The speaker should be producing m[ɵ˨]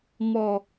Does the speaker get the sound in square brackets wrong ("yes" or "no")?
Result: yes